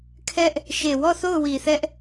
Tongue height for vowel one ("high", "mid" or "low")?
mid